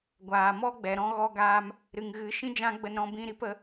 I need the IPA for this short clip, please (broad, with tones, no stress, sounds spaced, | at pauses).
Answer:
ɡʷ aː˨ m ɔ˦ ɡ͡b ɛ˨ ɾ ɔ̃˦ ɣ ɔ˧ ɡ aː˧ m | ɾ ɨ˨ ŋ ɣ ɨ˨˦ ʃ ĩ˦ d͡ʒ ã˦ ɡ͡b ə˧ n ɾ ɔ̃˧ b ĩ˧ ɾ i˨˦ p ə˨˦